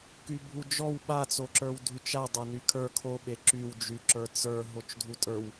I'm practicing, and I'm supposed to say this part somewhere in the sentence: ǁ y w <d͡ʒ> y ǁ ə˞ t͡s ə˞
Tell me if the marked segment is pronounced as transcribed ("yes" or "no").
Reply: yes